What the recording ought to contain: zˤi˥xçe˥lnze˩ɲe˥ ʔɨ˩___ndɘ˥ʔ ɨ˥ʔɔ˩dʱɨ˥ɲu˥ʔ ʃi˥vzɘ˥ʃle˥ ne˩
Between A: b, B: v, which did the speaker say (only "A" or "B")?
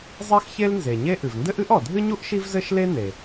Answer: B